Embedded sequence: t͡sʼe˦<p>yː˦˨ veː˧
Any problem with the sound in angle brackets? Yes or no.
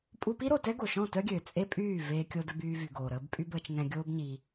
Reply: yes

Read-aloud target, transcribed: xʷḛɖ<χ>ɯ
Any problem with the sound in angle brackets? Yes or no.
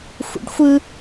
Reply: yes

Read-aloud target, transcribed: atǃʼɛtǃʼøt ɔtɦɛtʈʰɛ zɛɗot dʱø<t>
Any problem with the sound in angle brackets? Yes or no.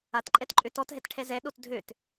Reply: no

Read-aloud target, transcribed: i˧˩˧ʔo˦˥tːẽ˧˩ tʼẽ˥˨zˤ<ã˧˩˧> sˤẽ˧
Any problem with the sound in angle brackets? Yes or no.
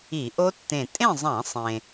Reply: no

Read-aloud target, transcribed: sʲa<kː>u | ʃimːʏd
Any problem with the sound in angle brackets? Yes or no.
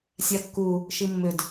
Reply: no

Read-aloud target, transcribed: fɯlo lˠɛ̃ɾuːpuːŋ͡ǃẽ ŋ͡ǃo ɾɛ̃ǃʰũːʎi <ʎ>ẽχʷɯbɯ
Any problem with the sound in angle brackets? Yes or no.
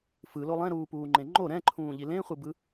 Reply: yes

